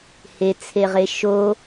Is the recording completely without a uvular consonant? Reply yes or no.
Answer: no